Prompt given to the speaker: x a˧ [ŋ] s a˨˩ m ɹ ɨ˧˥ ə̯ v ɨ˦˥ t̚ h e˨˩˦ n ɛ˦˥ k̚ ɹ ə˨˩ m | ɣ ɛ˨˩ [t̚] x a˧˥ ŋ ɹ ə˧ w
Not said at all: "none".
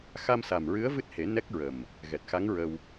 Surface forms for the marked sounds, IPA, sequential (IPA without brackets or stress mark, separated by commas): m, t̚